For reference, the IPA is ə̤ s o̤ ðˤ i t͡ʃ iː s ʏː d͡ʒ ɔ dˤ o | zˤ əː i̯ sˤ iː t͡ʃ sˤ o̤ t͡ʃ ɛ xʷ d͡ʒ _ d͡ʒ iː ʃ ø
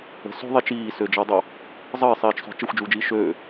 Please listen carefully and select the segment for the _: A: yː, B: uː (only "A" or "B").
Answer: B